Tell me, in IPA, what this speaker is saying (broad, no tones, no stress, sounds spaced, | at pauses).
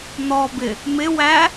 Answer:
n̪ ɔ b ɪ | m ɪ w æ